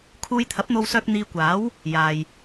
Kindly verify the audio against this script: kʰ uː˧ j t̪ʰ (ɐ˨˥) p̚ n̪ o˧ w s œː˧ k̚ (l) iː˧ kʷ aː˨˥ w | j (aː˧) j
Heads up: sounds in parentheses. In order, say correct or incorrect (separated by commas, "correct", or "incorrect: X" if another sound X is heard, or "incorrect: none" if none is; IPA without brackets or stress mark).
correct, incorrect: n̪, incorrect: aː˨